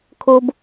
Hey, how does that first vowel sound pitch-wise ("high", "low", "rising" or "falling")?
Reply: high